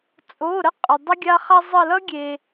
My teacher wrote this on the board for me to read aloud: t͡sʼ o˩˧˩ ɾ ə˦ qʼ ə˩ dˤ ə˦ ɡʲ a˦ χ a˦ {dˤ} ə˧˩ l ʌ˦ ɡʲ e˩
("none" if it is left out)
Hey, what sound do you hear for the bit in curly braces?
zˤ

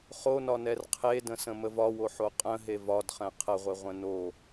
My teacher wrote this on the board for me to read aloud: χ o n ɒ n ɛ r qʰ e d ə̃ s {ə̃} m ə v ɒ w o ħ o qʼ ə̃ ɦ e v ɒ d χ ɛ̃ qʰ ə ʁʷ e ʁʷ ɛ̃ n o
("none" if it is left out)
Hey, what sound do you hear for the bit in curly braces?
ə̃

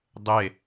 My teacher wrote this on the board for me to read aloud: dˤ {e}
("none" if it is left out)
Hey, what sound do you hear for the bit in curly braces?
e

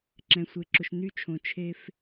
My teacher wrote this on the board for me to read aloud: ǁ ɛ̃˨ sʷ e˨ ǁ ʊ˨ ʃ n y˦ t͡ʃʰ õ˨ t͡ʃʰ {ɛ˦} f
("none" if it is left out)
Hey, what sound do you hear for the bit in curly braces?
e˦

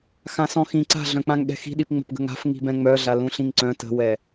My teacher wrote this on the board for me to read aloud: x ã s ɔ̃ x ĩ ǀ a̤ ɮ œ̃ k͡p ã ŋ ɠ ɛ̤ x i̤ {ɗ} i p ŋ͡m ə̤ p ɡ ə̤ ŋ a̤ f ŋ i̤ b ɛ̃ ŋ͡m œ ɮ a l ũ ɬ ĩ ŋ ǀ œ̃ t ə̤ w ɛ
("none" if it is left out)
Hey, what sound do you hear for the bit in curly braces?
ɗ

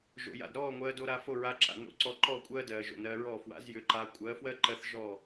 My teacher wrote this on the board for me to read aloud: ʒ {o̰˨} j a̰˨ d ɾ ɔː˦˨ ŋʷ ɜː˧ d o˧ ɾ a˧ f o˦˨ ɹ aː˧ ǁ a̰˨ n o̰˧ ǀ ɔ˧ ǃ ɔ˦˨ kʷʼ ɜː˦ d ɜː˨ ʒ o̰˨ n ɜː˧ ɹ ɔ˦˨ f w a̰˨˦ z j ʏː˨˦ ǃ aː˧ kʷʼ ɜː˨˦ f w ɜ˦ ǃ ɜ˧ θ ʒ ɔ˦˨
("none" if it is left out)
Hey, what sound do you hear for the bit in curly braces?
o̰˨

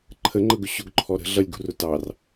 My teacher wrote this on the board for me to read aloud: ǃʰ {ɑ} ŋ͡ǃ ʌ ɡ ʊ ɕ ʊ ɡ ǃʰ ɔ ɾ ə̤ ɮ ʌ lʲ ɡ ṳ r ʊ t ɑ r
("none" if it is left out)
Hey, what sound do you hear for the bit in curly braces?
ə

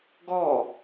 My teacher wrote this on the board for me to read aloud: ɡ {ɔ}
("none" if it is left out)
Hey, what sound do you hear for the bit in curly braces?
ɔ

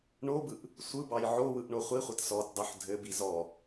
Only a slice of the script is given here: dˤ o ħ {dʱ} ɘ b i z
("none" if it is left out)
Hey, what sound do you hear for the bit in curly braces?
dʱ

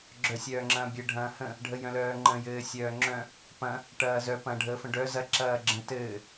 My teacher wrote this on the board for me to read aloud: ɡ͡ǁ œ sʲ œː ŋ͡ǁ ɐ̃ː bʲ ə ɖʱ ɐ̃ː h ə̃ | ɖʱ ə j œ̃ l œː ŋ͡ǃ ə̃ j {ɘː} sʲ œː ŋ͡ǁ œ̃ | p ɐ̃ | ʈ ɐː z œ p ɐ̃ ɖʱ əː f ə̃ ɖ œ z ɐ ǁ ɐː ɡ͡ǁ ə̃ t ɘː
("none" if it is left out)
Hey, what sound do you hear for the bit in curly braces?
ɘː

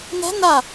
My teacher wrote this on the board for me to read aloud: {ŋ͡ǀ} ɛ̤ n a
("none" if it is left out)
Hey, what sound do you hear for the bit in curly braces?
n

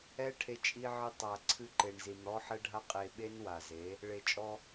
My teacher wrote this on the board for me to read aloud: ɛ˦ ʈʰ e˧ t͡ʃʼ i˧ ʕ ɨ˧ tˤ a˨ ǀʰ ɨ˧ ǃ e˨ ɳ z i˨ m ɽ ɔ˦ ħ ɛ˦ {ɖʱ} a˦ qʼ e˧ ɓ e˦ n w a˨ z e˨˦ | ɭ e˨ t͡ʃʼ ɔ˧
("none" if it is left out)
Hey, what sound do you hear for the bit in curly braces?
ɖʱ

